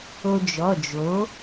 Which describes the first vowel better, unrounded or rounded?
rounded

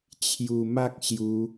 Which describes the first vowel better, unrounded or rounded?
rounded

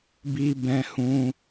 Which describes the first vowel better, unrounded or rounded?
unrounded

